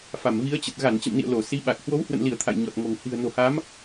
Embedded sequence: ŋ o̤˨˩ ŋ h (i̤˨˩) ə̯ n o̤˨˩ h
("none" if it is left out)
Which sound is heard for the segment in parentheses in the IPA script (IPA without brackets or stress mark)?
i̤˨˩